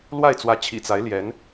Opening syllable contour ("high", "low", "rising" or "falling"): falling